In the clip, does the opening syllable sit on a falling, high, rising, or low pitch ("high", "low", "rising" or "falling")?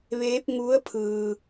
rising